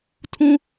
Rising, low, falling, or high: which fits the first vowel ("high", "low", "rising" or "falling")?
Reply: high